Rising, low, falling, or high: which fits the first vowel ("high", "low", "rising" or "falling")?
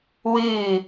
falling